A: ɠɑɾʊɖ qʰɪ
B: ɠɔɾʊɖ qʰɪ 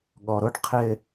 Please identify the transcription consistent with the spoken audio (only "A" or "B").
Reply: B